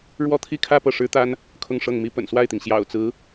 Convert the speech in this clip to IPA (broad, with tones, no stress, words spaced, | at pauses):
ɻwɔ˥˧t̪ʰi˥˧kʰä˥˧ pɤ˥˩ʂɻ̩˥t̪a˥n | kʰʊ˥˧ŋʂɤ˥˩ŋmi˥ pə̰˨˩nswa˥˩ɪ̯t̪i˩ŋ ɕjɑ̰˨˩ʊ̯t͡sɹ̩˧˥